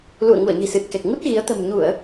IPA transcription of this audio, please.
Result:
l ṵ˧˨ ə̯ ŋ u˧˩ ə̯ ɲ i̤˨˩ s ɨ˨˩ t̚ k ɛ˨˩ k̚ ŋ u˦˥ t̚ ɣ i˨˦ ə̯ t̪ ə̤˨˩ m ɲ u˧˩˨ ə̯

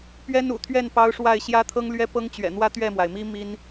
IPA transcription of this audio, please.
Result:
p ɥ ɛ˥ n ṵ˨˩ t̪ʰ ɥ ɛ˥˩ n p ɑ˥ ʊ̯ ʂ w a˥˩ ɪ̯ ɕ j ä˥ t̪ʰ ɤ˥ ŋ l ɥ ɛ˥ p ɤ˥ ŋ t͡ɕ ɥ ɛ̰˨˩ n̪ w ä˥˧ t̪ ɥ ɛ˥˩ m w a˩ ɪ̯ m i˥ m i˥ n

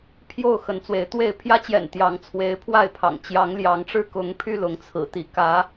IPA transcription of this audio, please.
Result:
pʰ j o˥˨ ʊ̯ x ə˨˦ n t͡s w e˨˦ ɪ̯ t̪ w e˥˨ ɪ̯ pʰ j ä˦ t͡ɕ j ɛ̰˨˩ n t̪ j ɑ˨˦ ŋ t͡sʰ w e˨˦ ɪ̯ pʰ w a˥˨ ɪ̯ pʰ ɑ̰˨˩ ŋ t͡ɕ j ɑ˨˦ ŋ l j ɑ˨˦ ŋ ʈ͡ʂ ɻ̩˥˨ k ʊ˨˦ ŋ pʰ y˧ l ʊ˨˦ ŋ t͡sʰ ɹ̩˨˩ t̪ i˨˦ k ä˨˦

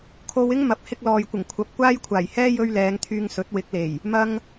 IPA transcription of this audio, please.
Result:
kʰ o˧ w ɪ˥ ŋ m ɐ˨ p̚ h ɪ˧ k̚ l ɔː˨ j kʷ ɪ˨˩ ŋ kʷʰ ɐ˨˥ p̚ kʷ aː˥ j kʷʰ aː˨˩ j h ɛː˥ j ɵ˥ ɥ l ɛː˨˧ ŋ t̪ʰ yː˧ ŋ s ɵ˨˥ t̚ w ɪ˨˥ k̚ l e˨˩ j | m ɐ˧ ŋ

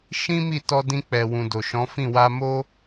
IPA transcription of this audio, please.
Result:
ʃ ĩ˦ m i˦˨ t ɔ˧ d ĩ˧ k͡p ɛ˨ w ũ˨ d o˨ ʃ ɔ̃˨˦ f ĩ˦˨ w a˧ m o˦

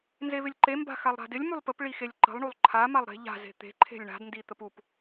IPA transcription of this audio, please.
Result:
n z e β ɪ lʲ ǃ e m b a̤ x a lˠ ɾ a̤ d ɪ lʲ m u lˠ p ə p ɭ i x e lʲ ǃ ə̤ lˠ ɳ u lˠ ǃʰ a m a lˠ ɾ e̤ ʎ a̤ z e̤ t̪ e̤ ǃʰ e̤ lʲ ɳ a̤ d n d i t̪ ə p u p

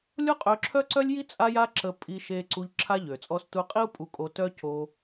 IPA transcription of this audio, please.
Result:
lʲ o˦ qʼ ø˧ ǁʰ œ˦ ǀ œ˦ lʲ j i˦ t͡sʼ a˦ j a˦ ǁ ə˧ pʼ i˧ ʃ e˧ ǀ u˧ ʎ ǁʰ a˦ ʎ ø˨ t͡sʼ ɔ˧ s t u˧ qʼ i˦ u̯ pʼ u˧ kʼ o˧ t œ˦ c o˧

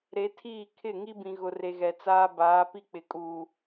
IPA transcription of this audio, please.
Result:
ɾ e˨˦ tʰ iː˦˨ kʰ ɪ˦˨ ŋ i˦ b ĩ˨ ɣ ʊ˨ r e˨ ɣ ɛ˨ t͡s aː˦ b aː˨˦ p i˦ k͡p ɪ˨ kʼ u˨

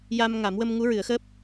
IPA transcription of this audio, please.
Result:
j a˧ m ŋ a˨˩˦ m w ə˧ m ŋ u˧˥ ɹ ɨ˨˩˦ ə̯ x əː˦˥ p̚

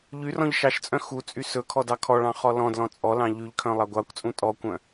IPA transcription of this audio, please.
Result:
ʎ y r ɔ̃ ʎ ʃ ɑ ʃ t͡sʼ œ̃ x u t͡sʼ y s ɵ kʰ ɔ d ɑ kʰ ɔ ɭ ɑ̃ χ ɔ l ɔ̃ d l ɔ̃ t͡sʼ ɔ l ɑ̃ ʎ y ʎ kʰ œ̃ lˠ ɑ ɡʷ ɑ kʷ t͡sʼ ũ tʼ ɔ kʷ œ̃

